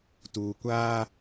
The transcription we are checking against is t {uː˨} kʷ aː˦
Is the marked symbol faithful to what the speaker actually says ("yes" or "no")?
yes